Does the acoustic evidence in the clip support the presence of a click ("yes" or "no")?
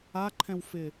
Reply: yes